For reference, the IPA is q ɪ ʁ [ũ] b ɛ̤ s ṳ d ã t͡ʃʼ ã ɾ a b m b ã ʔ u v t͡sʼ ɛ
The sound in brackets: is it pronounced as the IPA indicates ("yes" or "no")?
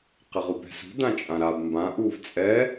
no